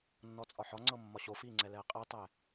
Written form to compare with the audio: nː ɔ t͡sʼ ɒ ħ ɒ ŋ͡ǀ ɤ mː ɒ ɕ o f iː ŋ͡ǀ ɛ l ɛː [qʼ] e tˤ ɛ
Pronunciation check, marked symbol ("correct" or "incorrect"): correct